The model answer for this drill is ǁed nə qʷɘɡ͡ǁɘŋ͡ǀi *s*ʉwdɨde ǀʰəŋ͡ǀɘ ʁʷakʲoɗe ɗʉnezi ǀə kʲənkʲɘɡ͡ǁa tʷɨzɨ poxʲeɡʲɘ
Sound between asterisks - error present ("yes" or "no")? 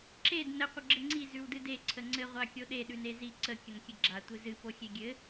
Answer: yes